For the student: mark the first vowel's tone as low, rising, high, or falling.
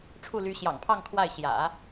falling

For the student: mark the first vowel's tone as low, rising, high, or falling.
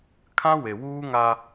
high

